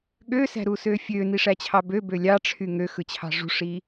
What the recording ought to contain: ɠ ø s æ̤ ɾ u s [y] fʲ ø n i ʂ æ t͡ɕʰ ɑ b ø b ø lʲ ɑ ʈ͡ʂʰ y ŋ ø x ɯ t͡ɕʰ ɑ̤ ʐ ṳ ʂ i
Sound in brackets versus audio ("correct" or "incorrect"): incorrect